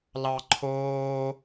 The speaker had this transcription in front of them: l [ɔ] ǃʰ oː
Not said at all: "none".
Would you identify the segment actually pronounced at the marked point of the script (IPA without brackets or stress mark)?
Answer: ɑ